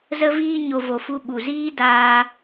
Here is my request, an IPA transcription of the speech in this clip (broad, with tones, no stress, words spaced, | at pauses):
zə˧viː˧ ɲo˨vo˨ fu˧ɓu˨ziː˦ daː˧